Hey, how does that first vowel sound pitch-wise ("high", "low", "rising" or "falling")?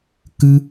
high